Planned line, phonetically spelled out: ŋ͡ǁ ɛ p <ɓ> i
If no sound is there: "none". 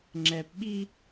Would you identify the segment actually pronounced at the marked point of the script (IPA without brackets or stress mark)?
ɓ